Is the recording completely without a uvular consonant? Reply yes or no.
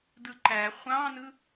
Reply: no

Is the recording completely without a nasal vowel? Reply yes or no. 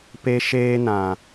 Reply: no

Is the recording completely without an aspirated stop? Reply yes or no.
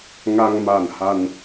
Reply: yes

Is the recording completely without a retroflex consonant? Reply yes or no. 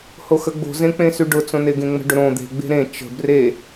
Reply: no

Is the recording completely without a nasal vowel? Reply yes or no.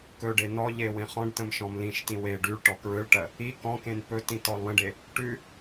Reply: no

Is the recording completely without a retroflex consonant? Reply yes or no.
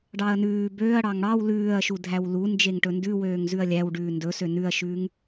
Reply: no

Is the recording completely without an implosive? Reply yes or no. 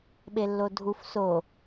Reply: no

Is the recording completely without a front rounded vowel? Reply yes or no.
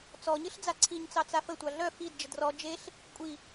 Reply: no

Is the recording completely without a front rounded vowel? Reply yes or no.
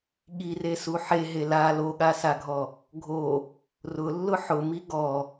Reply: yes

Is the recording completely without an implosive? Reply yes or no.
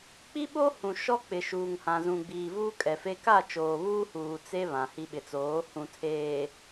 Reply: no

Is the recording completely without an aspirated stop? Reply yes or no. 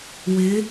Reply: yes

